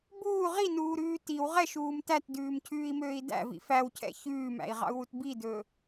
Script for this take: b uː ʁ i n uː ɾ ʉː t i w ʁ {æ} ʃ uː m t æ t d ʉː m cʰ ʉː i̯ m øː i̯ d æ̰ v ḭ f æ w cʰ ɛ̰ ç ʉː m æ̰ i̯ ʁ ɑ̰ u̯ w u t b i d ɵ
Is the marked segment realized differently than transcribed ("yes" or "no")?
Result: yes